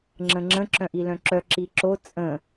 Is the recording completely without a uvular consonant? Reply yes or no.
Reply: yes